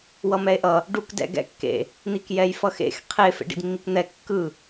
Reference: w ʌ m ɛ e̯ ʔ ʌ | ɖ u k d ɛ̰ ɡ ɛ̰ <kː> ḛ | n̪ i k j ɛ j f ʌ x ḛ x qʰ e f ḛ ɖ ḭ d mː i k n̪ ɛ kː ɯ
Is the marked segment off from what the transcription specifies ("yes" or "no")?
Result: no